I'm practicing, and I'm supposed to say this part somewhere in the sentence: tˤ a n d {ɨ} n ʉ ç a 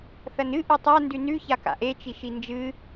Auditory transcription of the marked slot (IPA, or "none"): ʉ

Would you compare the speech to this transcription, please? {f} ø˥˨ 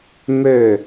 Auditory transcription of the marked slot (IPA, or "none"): m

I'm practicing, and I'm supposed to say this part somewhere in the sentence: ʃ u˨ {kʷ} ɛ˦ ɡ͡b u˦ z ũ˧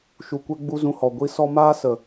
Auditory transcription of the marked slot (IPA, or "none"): kʷ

